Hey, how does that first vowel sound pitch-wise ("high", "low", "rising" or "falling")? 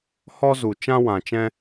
high